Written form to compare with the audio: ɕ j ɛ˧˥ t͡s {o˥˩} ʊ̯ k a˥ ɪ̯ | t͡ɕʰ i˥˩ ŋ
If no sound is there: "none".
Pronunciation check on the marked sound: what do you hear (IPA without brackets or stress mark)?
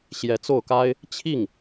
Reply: o˥˩